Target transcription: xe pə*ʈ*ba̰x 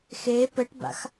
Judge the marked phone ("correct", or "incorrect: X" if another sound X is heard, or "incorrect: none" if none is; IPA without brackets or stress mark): correct